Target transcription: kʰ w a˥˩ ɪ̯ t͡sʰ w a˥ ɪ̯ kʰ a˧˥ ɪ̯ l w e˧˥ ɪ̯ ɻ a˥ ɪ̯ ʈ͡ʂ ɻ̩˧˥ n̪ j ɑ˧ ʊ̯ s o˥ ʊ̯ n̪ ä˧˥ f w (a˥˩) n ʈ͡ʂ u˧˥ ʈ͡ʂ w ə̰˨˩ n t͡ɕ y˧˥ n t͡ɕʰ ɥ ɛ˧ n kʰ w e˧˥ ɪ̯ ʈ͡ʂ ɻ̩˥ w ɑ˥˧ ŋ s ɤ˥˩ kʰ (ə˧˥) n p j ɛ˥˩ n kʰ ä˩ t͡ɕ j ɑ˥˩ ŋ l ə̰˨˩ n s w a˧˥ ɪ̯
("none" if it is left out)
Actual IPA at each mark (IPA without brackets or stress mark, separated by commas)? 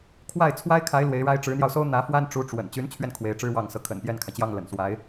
a˥, ə̰˨˩